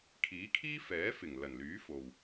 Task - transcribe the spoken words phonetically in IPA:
kʰiː˨˥kʰiː˥ fɛː˨˥fɪ˨˩ŋ lɐ˨˩nlyː˨˥ fo˨w

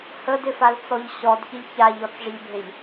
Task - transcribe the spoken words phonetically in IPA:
hədɪfalt͡sɔʎ ɕɔdçɪʎ çaʎɔt͡sʐɪʎbʱeʎ

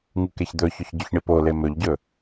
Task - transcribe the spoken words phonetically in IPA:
ŋukeçd̪ɵçɵç ɟɵçɳipole mɵʎɟɵ

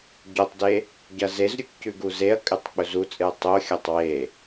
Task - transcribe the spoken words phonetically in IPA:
ɟotˤde | ɟɐzezɾʲuk cʉɡuzeɐ̯kʼɨtˤ k͡pɵzut͡sʼɨɐ̯ tˤoxʲɐtˤ we

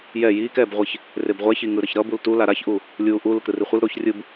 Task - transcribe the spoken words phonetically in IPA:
jɛ jiːkɛːbʁʷeç | rebʁʷɛçiŋɯ ɾʌçɾʌ bultu laɾaçʔu | lʲuːʔu lɯkɾɯriχʷɯl ɾoçrʲɯb

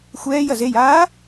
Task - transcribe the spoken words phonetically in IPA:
xʷɛːjɐz ejaː

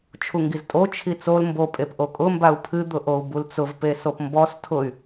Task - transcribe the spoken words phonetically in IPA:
t͡ʃʰuŋɡiztʼo t͡ʃʰit͡sol mbo pʼepʔokʼʊ mbau̯pʰɨ d̪ʊʔou̯bult͡sʊv pesopmbɔs tʰʊy̯

